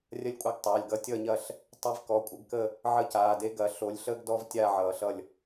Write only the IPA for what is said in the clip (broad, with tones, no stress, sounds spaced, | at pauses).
rʲ ɐ˦ lʲ kʷʼ a˦ ɡ tˤ aː˩˧˩ lʲ ɡ ʌ˦ tʲ ʌː˦˨ ɲ ɐ˦˨ ɬ | tˤ e˦ v k ɔ˩˧˩ kʷʼ ə˨˦ ɡ k ə˦˨ | ʕ ə˦˨ c aː˩˧˩ d e˦ ɡ ɐ˨˦ ɬ o˨˦ lʲ ɬ əː˦ ɡ d ɔ˦ v tʲ a˦˨ ʕ ʌː˨˩˦ ɬ ʌ˦˨ lʲ